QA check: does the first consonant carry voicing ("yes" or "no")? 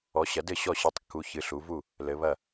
no